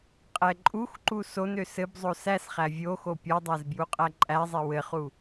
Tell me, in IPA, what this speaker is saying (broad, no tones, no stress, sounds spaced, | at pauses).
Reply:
qʼ ɛ ǃʼ u x ǃ u s o n ø s ɘ b zˤ o s æ s χ æ vʲ o x o pʲ ɔ dˤ æ z b j u qʼ æ ǃʼ æ zˤ ɛ w ɘ χ u